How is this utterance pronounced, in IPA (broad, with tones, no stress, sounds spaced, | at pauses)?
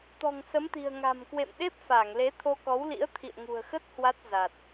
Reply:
t̪ ɔ̤˨˩ ŋ s ə˨˦ m t̪ i̤˨˩ ə̯ ŋ a̤˨˩ m k w ḛ˧˨ m ɗ e˦˥ p̚ f a˧˩ ŋ l e˨˦ t̪ʰ o˧ k ɔ˨˦ w l ḭ˧˥ ə̯ t̪ʰ ḭ˧˨ ə̯ ŋ ṳ˨˩ ə̯ x ə˦˥ t̚ h w a˦˥ t̚ z a˨˩ t̚